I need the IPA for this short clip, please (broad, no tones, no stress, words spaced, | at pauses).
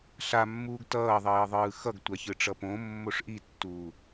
ɬamːuːɡ tʌːðˤiːðˤɯː xʌɡtʷaçɯʈ͡ʂʌ põmːoʂ ʔitːuː